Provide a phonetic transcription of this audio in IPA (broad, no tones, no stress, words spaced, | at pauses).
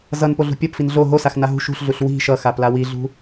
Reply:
zʌnpo ɮṳpʲɔp finɮo ɦosax naɦṳ ʃṳɬɮuɬ wi̤ ʃʌxapla wiɮṳ